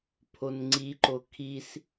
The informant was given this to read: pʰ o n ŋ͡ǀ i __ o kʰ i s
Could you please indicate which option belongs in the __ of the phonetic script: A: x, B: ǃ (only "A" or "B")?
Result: B